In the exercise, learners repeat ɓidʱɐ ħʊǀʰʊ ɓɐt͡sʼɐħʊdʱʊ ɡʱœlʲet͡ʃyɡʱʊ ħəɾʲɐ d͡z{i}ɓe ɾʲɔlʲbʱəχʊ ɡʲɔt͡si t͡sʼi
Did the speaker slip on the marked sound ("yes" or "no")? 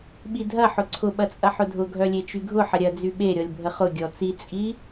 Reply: yes